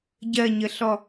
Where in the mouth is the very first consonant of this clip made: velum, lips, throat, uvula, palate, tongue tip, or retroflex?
palate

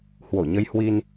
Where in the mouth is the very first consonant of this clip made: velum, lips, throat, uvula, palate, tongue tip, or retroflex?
throat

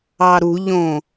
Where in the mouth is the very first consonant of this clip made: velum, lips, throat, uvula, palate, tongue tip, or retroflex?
tongue tip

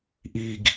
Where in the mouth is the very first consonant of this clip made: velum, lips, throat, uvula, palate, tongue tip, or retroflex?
throat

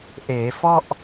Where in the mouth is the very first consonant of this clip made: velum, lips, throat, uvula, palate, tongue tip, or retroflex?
throat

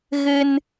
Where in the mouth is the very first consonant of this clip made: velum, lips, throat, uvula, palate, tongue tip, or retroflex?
velum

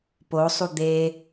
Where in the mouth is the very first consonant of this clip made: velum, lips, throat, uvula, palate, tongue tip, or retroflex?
lips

